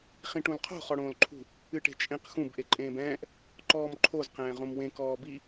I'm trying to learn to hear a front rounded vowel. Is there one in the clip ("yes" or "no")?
no